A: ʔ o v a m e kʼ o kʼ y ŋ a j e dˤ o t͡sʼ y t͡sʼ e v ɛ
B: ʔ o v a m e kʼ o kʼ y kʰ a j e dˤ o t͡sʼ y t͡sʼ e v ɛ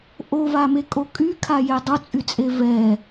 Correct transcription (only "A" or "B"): B